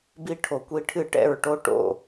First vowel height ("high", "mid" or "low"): high